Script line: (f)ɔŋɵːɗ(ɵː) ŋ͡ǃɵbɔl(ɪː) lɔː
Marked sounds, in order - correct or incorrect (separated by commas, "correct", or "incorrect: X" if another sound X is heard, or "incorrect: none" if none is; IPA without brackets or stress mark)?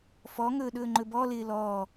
correct, correct, correct